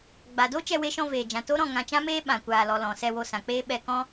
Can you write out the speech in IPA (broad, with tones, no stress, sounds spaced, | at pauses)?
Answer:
ɡ͡b a˨ d o˦ t͡ʃ ɛ˧ w e˧ ʃ ɔ̃˧ v eː˨ d͡ʒ ã˨ t o˦ ɾ ɔ̃˦˨ ŋ ã˧ t͡ʃ ã˦ m eː˦ ɓ ã˨ kʷ aː˨ l ɔ˨ l ɔ̃˨ s ɛ˧ w o˧ s ã˨ k͡p eː˦ ɓ ɛ˧ k ɔ̃˦